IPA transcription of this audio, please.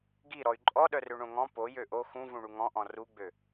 ɡ i ɾ ɔ y̯ ǃʼ ɔ ɗ œ r ø ɳ õ ŋ ɔ̃ p o j ø ʔ o x ũ v ũ ɳ u ŋ ɔ̃ ʔ ɔ̃ r u ɡ͡b ø

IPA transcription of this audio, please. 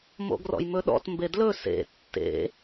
m o̰ ɡ r ɔ̰ j m ɵ ɗ ɔ̰ t m b e d l ɵ s ḛ tː ḛ

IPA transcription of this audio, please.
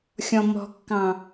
xʲ ɔ̃ m ɔ̤ kː ɑ̃

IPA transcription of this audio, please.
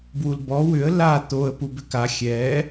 b w u l b ɔ w ʏ ə̯ l a t̪ o ə̯ p u b ʏ k a xʲ ɛ

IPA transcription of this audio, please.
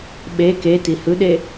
ɓ e k e t i h ɯ ɗ e

